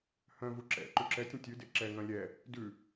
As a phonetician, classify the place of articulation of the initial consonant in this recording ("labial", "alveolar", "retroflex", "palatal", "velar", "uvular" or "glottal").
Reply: glottal